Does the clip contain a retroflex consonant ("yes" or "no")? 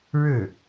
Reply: yes